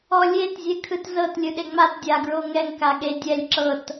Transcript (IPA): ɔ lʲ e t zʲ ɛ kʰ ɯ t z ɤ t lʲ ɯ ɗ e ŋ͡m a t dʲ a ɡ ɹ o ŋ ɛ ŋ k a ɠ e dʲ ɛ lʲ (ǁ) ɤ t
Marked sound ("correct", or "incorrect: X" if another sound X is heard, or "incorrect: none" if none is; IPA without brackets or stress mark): correct